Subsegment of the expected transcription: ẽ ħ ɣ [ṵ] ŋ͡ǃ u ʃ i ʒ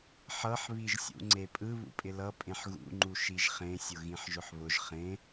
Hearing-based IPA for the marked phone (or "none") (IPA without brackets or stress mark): ṵ